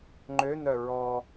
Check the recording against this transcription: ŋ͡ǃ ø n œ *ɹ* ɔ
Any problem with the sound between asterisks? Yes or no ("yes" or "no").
no